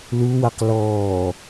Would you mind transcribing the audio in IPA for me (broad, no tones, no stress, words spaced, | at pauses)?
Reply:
luwaq lɔː